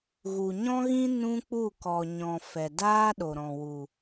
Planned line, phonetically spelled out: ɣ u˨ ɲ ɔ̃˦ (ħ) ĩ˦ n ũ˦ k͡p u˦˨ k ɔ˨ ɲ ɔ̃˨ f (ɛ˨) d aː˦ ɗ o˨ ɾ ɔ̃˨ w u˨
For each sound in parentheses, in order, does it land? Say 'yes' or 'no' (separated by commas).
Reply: no, yes